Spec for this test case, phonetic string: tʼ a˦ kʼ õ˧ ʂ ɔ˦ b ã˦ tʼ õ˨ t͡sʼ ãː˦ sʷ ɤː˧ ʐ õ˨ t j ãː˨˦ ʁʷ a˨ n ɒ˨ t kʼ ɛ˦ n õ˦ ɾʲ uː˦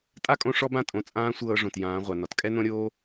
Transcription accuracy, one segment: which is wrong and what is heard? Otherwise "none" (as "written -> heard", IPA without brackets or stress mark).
uː˦ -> oː˦